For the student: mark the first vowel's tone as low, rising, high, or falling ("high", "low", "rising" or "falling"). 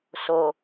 low